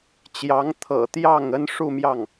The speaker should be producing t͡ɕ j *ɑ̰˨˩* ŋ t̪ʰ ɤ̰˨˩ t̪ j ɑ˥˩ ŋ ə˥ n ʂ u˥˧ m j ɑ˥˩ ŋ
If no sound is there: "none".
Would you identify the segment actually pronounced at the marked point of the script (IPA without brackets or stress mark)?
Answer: ɑ˧˥